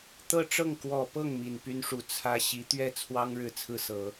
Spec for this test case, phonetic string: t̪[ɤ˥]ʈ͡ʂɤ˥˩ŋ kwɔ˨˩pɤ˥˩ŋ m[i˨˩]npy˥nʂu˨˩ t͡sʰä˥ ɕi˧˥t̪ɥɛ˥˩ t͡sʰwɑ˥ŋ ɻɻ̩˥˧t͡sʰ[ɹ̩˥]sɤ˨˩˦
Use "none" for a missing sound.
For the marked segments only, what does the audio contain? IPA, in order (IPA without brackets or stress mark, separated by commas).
ɤ˥, i˨˩, ɹ̩˥˩